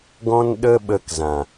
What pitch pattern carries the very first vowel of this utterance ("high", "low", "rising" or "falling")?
high